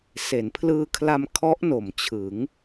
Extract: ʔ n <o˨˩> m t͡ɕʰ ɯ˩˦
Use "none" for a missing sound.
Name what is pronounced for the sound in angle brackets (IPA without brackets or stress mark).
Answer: o˩˦